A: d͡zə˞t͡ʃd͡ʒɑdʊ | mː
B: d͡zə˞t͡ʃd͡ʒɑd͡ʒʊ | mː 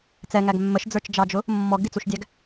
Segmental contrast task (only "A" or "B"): B